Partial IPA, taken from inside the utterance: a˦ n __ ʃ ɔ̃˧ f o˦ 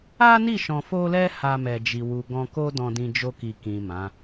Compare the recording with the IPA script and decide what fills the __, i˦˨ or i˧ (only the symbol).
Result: i˦˨